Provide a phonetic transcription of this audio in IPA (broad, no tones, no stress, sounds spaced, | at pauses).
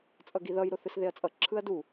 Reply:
t͡sʼ ʌ ɡ i ð ʌ j ɾ o θ ɯ s ð e ɐ̯ t͡sʼ ʌ ǁʰ ɯ ɐ̯ d u